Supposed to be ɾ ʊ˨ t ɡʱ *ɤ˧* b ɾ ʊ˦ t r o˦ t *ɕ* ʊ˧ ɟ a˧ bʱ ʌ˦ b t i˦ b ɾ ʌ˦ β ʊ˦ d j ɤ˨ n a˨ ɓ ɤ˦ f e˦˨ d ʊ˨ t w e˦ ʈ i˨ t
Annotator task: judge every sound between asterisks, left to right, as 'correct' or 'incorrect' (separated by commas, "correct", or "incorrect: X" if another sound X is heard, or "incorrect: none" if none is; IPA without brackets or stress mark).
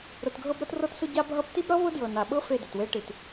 correct, incorrect: s